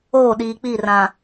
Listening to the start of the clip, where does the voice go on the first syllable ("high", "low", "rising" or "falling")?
falling